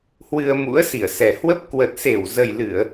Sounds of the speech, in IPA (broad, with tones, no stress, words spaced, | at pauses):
hwɨ˧ə̯mṵ˧˥ə̯ si˧˩ə̯sɛ˨˩hwə˦˥p̚ kwə˨˩t̚se˧˩wzə˨˩jlɨ˧˩˨ə̯